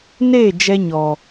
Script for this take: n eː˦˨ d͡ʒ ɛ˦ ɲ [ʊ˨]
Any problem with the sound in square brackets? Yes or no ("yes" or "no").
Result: yes